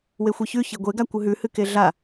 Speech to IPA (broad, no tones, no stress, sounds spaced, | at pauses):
w e xʷ e ç ʉ ç e ɡʷ e ɡ a kʷ ɨ ɦ ʉ h ɨ k e ɮ a